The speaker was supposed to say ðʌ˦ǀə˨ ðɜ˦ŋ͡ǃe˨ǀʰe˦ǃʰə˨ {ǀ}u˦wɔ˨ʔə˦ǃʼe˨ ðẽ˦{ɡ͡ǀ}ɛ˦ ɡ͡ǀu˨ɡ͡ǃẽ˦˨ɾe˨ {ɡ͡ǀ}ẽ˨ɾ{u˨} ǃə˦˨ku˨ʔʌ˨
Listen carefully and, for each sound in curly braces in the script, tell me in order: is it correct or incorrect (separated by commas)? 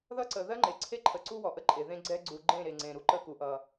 correct, correct, incorrect, incorrect